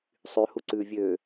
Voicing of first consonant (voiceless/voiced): voiceless